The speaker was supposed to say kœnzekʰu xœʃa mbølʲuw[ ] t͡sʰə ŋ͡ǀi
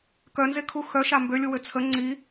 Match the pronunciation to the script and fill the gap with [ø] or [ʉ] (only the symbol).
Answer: ø